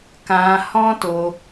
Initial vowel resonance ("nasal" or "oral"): nasal